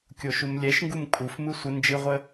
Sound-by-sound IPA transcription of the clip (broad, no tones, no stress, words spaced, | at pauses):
kʲoʃumlʲɛʃŋɡum kʼufmɨ sʷə nd͡ʒɨʁʷə